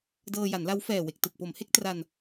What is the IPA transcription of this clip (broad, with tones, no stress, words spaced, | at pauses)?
dɤː˧ja˩˦nla˦˥w fɛː˨˩we˨˩k̚tɯ˨˩k̚po˩˦m he˦˥k̚tra˧n